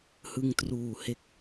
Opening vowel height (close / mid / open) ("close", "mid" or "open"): close